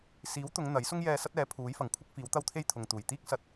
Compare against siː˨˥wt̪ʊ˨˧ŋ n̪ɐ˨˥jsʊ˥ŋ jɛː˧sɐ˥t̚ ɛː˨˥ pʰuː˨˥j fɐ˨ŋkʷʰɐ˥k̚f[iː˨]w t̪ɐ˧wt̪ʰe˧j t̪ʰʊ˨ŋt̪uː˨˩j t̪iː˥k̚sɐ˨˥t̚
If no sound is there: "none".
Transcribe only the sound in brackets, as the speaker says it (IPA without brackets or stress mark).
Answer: iː˨˥